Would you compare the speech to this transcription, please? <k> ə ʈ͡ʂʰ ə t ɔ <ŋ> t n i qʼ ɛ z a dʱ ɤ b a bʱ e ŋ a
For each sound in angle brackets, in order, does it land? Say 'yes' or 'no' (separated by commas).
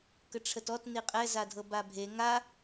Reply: yes, no